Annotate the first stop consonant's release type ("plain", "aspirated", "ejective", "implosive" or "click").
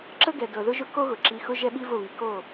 click